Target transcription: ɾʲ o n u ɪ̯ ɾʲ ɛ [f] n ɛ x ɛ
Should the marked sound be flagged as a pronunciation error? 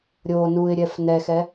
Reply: no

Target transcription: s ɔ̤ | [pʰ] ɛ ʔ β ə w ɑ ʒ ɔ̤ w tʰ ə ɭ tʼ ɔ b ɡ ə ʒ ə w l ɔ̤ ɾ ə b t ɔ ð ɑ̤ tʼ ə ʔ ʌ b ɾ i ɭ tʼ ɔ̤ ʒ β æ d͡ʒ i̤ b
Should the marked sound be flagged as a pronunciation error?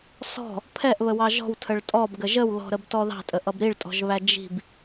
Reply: no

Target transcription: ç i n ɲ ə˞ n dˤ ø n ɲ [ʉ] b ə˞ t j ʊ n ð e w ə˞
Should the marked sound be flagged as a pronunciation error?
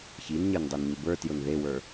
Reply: yes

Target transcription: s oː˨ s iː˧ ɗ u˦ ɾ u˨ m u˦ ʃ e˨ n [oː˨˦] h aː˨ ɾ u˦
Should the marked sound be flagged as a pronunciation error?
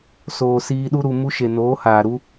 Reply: no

